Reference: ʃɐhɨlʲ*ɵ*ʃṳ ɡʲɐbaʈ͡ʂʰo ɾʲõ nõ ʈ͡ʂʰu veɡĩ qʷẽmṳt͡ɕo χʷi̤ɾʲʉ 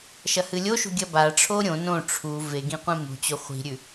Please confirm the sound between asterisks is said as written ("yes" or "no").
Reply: no